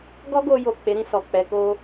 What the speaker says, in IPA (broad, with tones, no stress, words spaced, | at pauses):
ɡɔ˦ɡo˧jo˨ k͡pe˨˦ɾĩ˧sɔ˨ k͡pɛ˧ko˦